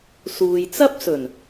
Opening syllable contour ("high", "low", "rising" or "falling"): low